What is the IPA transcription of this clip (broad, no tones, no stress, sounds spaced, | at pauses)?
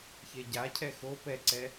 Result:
ç e ɟ a cʰ ɛ x o p ɛ ǀ ɛ